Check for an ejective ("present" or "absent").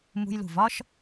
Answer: absent